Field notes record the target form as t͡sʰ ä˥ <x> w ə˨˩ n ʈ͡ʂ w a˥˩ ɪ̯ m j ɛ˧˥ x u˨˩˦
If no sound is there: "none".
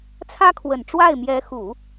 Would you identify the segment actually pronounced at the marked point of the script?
kʰ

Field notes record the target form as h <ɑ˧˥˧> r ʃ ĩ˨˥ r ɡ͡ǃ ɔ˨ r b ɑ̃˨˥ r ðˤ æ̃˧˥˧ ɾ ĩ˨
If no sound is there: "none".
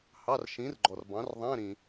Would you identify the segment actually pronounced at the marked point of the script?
ɑ˧˥˧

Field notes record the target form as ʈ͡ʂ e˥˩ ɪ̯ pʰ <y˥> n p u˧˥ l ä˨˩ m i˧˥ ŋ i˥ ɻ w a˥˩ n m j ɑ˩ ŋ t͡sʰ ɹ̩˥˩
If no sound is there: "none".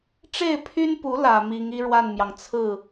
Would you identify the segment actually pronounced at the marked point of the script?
y˥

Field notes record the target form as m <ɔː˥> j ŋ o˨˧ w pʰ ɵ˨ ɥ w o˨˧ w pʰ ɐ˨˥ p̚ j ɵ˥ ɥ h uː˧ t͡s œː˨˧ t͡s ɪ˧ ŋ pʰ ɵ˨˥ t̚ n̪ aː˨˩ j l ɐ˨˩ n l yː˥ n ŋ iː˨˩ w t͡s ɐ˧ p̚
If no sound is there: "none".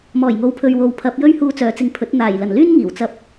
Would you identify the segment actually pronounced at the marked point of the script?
ɔː˨˩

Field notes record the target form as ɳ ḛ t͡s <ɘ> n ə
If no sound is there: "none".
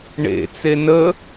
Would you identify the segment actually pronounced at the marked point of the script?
e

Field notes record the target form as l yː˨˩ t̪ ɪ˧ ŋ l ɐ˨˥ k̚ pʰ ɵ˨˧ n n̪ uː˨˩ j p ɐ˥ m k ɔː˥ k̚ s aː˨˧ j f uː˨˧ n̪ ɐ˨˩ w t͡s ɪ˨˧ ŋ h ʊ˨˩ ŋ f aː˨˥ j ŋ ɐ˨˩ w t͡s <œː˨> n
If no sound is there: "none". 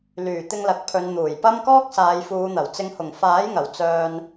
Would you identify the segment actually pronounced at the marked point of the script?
œː˧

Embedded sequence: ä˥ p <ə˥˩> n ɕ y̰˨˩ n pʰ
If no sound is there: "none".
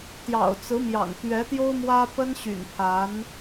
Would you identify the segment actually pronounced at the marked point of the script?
ə˥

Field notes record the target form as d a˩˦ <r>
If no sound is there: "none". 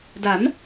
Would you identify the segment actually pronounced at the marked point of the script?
n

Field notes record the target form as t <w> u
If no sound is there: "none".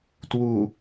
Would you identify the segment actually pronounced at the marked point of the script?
w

